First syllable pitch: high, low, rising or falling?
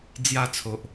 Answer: falling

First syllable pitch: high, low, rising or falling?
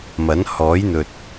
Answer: rising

